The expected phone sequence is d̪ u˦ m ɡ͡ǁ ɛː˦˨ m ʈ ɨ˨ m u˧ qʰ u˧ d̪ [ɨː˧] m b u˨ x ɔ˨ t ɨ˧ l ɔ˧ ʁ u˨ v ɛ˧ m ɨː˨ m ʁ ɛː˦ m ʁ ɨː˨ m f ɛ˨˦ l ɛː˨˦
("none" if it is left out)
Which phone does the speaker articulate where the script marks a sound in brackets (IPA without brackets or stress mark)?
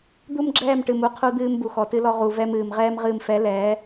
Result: ɨː˧